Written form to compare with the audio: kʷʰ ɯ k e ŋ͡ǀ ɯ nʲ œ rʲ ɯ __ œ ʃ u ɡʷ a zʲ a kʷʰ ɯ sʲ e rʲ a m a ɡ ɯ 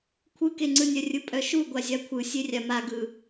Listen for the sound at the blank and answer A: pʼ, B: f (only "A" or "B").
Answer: A